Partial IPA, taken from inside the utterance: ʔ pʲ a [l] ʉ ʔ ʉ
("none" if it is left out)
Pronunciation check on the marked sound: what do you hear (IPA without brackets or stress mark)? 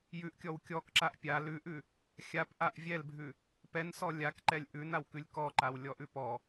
l